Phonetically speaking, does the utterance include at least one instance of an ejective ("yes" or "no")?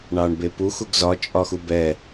yes